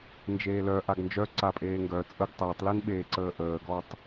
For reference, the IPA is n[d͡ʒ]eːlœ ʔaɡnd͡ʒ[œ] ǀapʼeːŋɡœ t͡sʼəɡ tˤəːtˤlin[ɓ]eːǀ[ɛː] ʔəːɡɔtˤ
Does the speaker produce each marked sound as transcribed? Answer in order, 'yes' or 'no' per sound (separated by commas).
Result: yes, yes, yes, no